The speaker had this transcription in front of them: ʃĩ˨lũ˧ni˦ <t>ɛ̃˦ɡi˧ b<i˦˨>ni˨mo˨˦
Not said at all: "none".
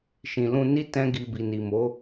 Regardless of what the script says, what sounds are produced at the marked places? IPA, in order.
t, i˨

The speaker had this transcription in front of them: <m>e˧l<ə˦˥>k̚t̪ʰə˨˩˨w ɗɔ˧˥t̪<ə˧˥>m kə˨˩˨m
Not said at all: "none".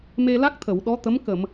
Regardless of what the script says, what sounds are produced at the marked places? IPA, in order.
m, a˦˥, ə˧˥

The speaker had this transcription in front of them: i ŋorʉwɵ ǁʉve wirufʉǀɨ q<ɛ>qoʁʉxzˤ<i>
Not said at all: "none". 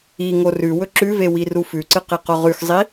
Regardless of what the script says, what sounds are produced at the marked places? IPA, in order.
e, i

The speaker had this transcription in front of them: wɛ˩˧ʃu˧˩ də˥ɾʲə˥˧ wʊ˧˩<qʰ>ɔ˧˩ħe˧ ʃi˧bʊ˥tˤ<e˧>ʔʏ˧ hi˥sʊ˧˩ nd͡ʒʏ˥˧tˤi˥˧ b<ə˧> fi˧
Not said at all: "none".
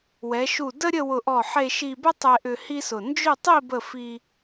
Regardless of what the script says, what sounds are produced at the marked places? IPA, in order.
ʔ, e˧, ə˥˧

